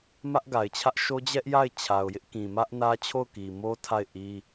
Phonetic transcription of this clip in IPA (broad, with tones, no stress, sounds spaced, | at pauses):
m ä˦ ʔ ɡ a˨ ɪ̯ t͡ɕʰ ä˦ ʔ ʃ o˦ d͡ʑ ɛ˦ ʔ j a˦˨ ɪ̯ t͡ɕʰ a˨ ʊ̯ j ɪ˦ ʔ k ĩ˨ m ä˦ ʔ n ä˦ t͡ɕʰ o˦˨ ʊ̯ k i˨ m o˦ tʰ a˦˨ ɪ̯ ʔ i˦